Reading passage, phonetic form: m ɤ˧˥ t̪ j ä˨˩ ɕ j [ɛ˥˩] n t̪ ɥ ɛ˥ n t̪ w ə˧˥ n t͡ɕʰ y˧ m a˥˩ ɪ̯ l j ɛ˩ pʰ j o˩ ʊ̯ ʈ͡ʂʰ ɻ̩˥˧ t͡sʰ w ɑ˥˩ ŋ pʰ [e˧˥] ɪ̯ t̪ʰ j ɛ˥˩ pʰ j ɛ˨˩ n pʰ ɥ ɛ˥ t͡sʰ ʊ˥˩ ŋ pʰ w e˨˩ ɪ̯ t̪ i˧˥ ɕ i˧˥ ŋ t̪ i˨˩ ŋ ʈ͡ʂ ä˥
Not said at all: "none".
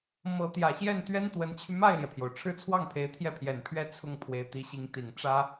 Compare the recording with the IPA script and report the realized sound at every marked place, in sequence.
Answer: ɛ˥˩, e˧˥

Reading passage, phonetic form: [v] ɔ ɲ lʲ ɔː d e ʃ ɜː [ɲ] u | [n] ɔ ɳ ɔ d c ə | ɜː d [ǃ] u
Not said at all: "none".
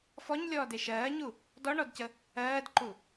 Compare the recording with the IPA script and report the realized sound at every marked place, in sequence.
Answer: f, ɲ, d, ǃ

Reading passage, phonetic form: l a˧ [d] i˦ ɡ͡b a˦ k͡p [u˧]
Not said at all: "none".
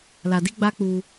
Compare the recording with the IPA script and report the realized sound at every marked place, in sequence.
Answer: d, u˧

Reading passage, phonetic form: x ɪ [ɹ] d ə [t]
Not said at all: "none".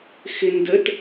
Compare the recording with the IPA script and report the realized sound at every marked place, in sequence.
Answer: n, t

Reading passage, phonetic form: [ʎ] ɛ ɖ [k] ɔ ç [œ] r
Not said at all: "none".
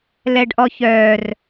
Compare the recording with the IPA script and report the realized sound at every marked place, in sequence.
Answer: l, ʔ, œː

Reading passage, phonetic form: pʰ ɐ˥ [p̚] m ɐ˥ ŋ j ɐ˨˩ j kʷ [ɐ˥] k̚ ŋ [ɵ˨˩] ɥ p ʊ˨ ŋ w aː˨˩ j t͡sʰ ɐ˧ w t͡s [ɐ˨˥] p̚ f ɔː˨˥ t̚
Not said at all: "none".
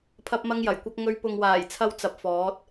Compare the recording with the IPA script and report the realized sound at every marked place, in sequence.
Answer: p̚, ɐ˥, ɵ˧, ɐ˧

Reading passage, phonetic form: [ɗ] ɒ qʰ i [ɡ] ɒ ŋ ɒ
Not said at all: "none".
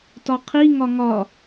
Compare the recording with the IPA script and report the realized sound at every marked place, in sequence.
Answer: t, ŋ

